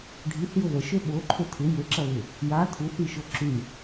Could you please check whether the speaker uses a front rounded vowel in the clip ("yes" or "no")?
yes